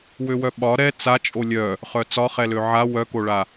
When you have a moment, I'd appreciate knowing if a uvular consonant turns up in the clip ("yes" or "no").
yes